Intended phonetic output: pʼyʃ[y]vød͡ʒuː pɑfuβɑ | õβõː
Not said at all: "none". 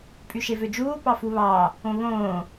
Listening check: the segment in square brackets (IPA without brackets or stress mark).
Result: e